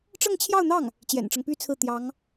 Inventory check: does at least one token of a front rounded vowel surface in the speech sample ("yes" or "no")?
yes